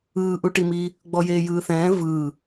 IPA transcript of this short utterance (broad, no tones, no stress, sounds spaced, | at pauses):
ɯː ʔ u ʈ i m iː | ɡ͡b ɔ j eː j ɯː θ ɛ̃ː v ɯː